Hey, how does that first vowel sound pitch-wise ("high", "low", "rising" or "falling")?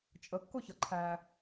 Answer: rising